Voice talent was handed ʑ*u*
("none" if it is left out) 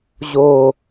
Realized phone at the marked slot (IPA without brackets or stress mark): o